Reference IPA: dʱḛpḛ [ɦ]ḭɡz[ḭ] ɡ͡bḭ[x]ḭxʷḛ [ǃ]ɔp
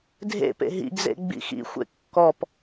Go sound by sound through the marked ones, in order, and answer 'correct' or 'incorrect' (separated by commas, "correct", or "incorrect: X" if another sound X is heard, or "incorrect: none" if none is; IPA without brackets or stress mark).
correct, incorrect: ḛ, correct, incorrect: kː